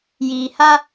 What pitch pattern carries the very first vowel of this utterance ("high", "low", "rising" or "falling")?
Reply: low